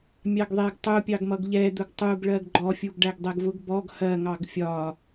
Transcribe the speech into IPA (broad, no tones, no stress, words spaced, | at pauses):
mʲɑɡðˤɛɡ tˤupʲɑɡ mʌɡʎɛd̪ʊɡ tˤuɡɭɜɡ ɡ͡ǃɔfʲuɡ ɖæɡdˤɛɡvʊɡ bɔɡ hɜŋɑɡ fʲɒ